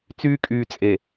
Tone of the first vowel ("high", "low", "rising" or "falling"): high